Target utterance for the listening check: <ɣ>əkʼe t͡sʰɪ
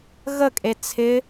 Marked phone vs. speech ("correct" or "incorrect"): correct